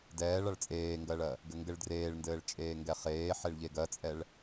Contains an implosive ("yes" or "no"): no